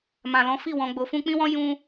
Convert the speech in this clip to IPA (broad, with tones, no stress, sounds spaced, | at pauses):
m ã˨ l ɔ̃˨˦ f i˦˨ w ɔ̃˨ ɡ͡b o˨ f ũ˧ k͡p ĩ˦ w ɔ̃˦ j ũ˦